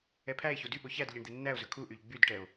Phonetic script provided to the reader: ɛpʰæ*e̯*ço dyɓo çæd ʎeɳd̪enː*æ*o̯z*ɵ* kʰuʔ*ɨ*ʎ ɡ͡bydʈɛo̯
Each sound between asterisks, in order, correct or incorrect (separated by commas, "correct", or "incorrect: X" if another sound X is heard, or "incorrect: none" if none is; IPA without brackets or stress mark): correct, correct, correct, incorrect: y